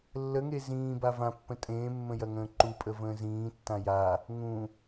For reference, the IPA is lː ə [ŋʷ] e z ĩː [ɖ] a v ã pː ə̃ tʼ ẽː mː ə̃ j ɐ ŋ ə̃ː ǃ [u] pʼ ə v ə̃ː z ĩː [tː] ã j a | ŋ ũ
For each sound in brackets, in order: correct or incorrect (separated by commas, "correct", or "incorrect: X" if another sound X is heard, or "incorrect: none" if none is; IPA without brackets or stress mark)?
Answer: incorrect: ŋ, incorrect: b, correct, correct